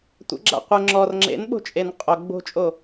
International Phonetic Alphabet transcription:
tʷ ə̰ ɡ͡ǁ a̰ qʷ ə ŋ͡ǁ ɔ r ŋ͡ǁ ḛ n ɓ o̤ t͡ʃʼ e n qʼ o ɡ͡b o̤ t͡ʃʼ o

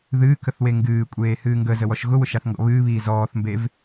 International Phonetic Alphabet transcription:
ð ɨː k ə θ w e ŋ ɡ ɨː kʷʼ eː h ɨː ŋ ɡ ə z ə w ɔ ʃ ɣ ʊ w ʊ ʃ a θ ŋ ɡ ɔ̰ β ɨː β iː z ɔː θ m b e v

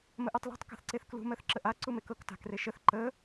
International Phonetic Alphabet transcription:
m ə ʔ ɜ tˤ l e̤ tˤ k a̤ θ ǀ e θ k l ṳ m ɜ θ ǁ ə ʔ a ǀ u m e k ɤ k t a̤ k r e ʃ ə θ ǃ ə

